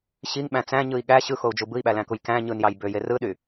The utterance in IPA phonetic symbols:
ɕ i ŋ ɓ æ̃ t͡s æ̃ ɲ ɯ i̯ ɠ æ ɕ ɯ x o u̯ d͡ʒ u b ɯ i̯ ɓ æ l æ̃ k u j k æ̃ ɲ ɯ n j ɑ j b ø j e r ɯ ɗ y

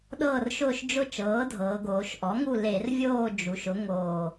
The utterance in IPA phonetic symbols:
ɗ ɤː˦˨ r ʃ ʊː˦˨ ʃ d͡ʒ ʊ˦˨ t͡ʃ ɤː˩˥ dʱ ɤː˩˧ ɡ oː˩˧ ʃ ʔ ɔ˩˥ ŋ u˦˨ l e˧˩˧ r vʲ oː˦˨ d͡ʒ u˩˧ ʃ ʊ˩˥ ŋ oː˨˩

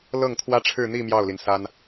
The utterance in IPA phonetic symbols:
l ɤ˥˩ ŋ t̪ʰ w ä˥ ʈ͡ʂʰ ɻ̩˥˧ n̪ i˥˧ m j ɑ˥˩ ʊ̯ l i˩ n s a˥ n

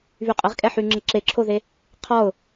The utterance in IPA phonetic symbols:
β y qʼ ə ʁ kʼ ɛ ħ y ŋ͡ǁ ə ǁ e ǁʰ o ð e | qʰ ɔ ʊ̯

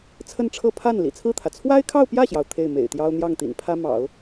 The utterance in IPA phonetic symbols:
t͡sʰ ə˥˧ n ʈ͡ʂʰ ɤ˥˧ pʰ a˥˩ n l ḭ˨˩ t͡sʰ ɹ̩˥˩ t̪ʰ ä˩ t͡sʰ w a˥ ɪ̯ kʰ ɑ˥˧ ʊ̯ p j ä˥˩ ɕ j ɑ˩ ʊ̯ t̪ʰ e˥˩ ɪ̯ m ḛ˨˩ ɪ̯ t̪ j ɑ˥ ʊ̯ n̪ j ɑ˥˩ ŋ t̪ ḭ˨˩ n pʰ ä˥ m ɑ̰˨˩˦ ʊ̯

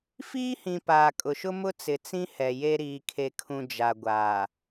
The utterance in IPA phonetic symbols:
f iː˦ h ĩ˨ p aː˨ kʼ ʊ˨ ʃ ʊ˦ m ʊ˦ t͡s ɪ˨ t͡s ĩ˦ h ɛ˨ j e˦ ɾ iː˨ kʰ e˨ kʰ ũ˨ d͡ʒ a˨ ɡʷ aː˨

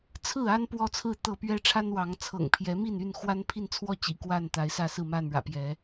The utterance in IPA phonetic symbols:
t͡sʰ ɹ̩˥˨ a˦ n p w ɔ˦ t͡sʰ ɹ̩˥˨ t̪ ɤ˥˨ p ɥ ɛ˦ ʈ͡ʂʰ a˦ n w ɑ˨˦ ŋ t͡sʰ ɤ̰˨˩ ŋ pʰ j ɛ˨˦ m i˥˨ n y˥˨ n x w a˦ n pʰ i˥˨ n t͡sʰ w ɔ˥˨ t͡ɕ ḭ˨˩ k w a˥˨ n t̪ a˨˦ ɪ̯ s ä˥˨ s ɹ̩˥˨ m a˥˨ n ɻ ä̰˨˩ p j ɛ˨˦

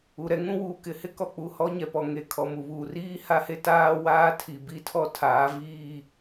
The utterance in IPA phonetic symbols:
u˨ ɾ ɛ˦ ŋ ũ˦ w uː˨ k ɪ˨ h ɪ˦ k ɔ˨ k͡p u˨ h ɔ˦ ɲ ɛ˨ p ɔ˨ ŋ e˨ kʰ ɔ˨ m u˨ β uː˨ r iː˦ h a˦ h e˦ t aː˦ w aː˦ tʰ i˨ b i˦ tʰ ɔ˦ tʰ aː˨˦ v iː˦˨

